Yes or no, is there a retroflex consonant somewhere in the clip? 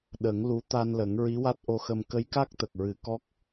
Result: no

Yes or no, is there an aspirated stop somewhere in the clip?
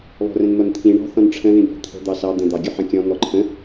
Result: yes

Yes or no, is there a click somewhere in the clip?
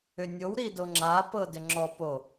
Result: yes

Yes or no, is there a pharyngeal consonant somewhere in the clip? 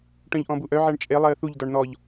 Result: yes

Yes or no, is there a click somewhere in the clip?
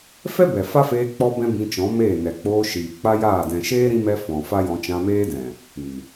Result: no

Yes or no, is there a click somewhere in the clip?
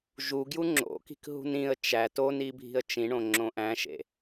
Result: yes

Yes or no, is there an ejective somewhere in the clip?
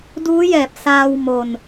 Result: no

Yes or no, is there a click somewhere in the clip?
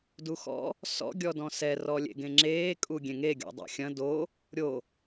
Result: yes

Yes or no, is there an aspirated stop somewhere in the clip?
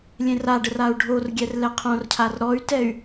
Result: yes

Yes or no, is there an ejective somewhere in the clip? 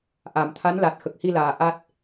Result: no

